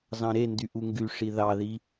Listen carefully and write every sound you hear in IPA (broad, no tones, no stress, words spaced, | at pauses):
zɑ̃ɾendy ʔuŋɡy ʂiðɑði